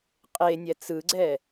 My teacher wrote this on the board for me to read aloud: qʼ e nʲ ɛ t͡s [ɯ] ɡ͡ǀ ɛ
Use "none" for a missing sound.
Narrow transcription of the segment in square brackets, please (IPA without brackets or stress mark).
ɯ